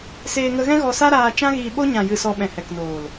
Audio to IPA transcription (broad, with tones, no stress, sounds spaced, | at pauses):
s eː˧ ŋ ə˧ ɣ ɛ̃˦ ɣ ɔ˧ s a˦ ɾ aː˧ t͡ʃ ã˦ ɣ iː˧ ɓ o˦ ɲ ã˨ j ɨ˨ s ɔ˧ ɓ ɛ̃˨ h ɛ˨ k n oː˨ l